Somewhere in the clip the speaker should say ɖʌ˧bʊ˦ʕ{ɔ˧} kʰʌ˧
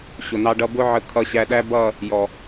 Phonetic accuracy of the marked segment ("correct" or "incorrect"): incorrect